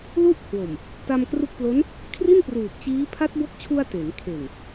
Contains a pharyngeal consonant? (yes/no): no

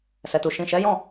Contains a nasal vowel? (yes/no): yes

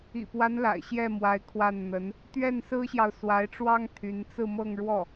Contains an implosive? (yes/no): no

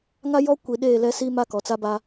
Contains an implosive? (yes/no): yes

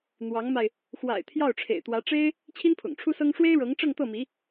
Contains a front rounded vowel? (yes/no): no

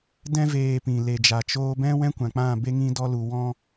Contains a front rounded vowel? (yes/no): no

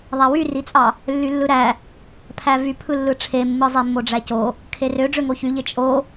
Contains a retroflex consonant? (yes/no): yes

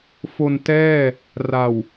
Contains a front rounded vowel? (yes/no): no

